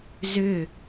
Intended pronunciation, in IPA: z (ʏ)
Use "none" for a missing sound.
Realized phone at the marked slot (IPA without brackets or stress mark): ʏ